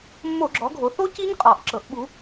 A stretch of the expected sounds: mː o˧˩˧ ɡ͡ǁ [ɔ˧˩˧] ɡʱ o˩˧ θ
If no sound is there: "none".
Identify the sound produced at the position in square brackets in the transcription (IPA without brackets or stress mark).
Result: ɔ˩˧